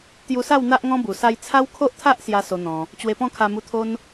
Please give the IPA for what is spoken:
t̪ j u˧ s a˥˧ w n̪ a˦ ʔ ŋ ɔ̃˦ b u˨˩ s a˧ j t͡sʰ a˦ w kʰ o˦ ʔ t̪ʰ a˦ ʔ s j a˦ s o˧ n̪ ɔ̃˧ | t͡ɕ w e˧ p ɔ̃˥˧ kʰ a˧ m u˧ t̪ʰ o˦ n

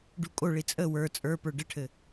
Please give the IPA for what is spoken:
ɖ u kʼ o ɭ i t͡sʼ ə w ə˞ t͡sʼ ə˞ p ə˞ ɖ ɘ ʈʰ ɘ

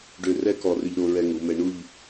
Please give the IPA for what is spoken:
ɖ ø˧˩ r ɛ˥˧ k ɔ˧˩ r ʏ˧ ʎ ɾ o˧ ɹ ɛ˧ ŋ u˩˧ m ɛ˧ ɳ u˥˧ ʎ

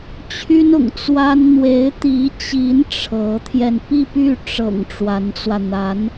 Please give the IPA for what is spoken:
t͡ɕʰ y˥ n ʊ̰˨˩ ŋ t͡s w a˥ n n̪ w e˧˥ ɪ̯ t̪ i˧˥ t͡ɕ i˧˥ n ʈ͡ʂʰ ɤ˧˥ t̪ʰ j ɛ˧ n p i˥˧ p y˥˩ ʈ͡ʂ ɤ̰˨˩ ŋ ʈ͡ʂ w a˧˥ n t͡s w ä˧ n̪ a˧˥ n

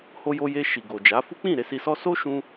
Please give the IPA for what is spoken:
h o˧ j o˧ j e˧ ʃ i˨ ɡ o˨ d͡ʒ a˨˦ f u˦ k͡p ĩ˦˨ ɾ e˧ s i˧ s ɔ˦ s o˦ ʃ ũ˧

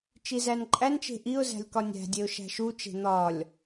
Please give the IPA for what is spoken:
t͡ʃ i z æ n ǃʼ æ n t͡ʃ e̤ ʔ i ʊ̯ z æ̤ lʲ k ɒ nʲ æ̤ dʲ e ʊ̯ ʃ æ̤ ʃ u t͡ʃ e̤ n̪ ɒ lʲ

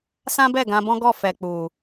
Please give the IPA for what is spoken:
s ã˦ b ɛ˦˨ ɡ ã˧ b ɔ̃˦ ɡ ɔ˦˨ f ɛ˨ k͡p u˨

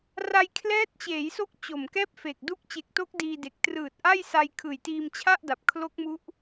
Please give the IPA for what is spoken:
r a˧ j kʰ l ɛː˦˥ t̚ t͡ɕ eː˩˦ j s o˦˥ k̚ t͡ɕ o˨˩ m k ɛː˥˩ p̚ f e˨˩ k̚ d u˥˩ k̚ t͡ɕ e˨˩ k̚ t o˦˥ k̚ d iː˧ d e˨˩ k̚ t r ɯː˨˩ t̚ ʔ a˥˩ j s a˧ j kʰ ɯː˨˩ j t iː˧ m t͡ɕʰ a˥˩ ʔ d a˨˩ p̚ kʰ l o˦˥ k̚ m u˦˥ ʔ

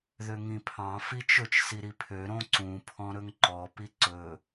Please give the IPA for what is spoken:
ð ø ŋ ĩ pʰ ɑ̃ f i t͡ʃ ɵ t͡ʃ s i ɾ i pʰ ø ɾ õ ǀ ũ pʰ ɔ̃ ɾ ɵ ŋ ǃ ɔ p i ǀ ɵ

